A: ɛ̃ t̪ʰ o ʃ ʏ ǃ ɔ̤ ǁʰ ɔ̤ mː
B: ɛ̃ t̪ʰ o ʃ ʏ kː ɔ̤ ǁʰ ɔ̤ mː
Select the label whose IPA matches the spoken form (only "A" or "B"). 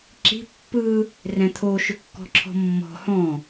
B